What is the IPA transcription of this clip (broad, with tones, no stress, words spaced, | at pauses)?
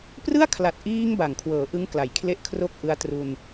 prɯ˥˩a̯kʰla˨˩t̚ ʔiː˧ŋ ba˨˩ŋkʰwɤː˩˦ʔɯ˦˥ŋ kla˨˩jkʰle˥˩ʔkʰro˥˩k̚ ʔɯ˧a̯tru˧n